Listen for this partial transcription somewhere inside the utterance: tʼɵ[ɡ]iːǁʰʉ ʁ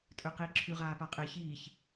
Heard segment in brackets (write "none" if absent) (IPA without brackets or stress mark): q